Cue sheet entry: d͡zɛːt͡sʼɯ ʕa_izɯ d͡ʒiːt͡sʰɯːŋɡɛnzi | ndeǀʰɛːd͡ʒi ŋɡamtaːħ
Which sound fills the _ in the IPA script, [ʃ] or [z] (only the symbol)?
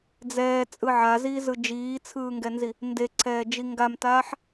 z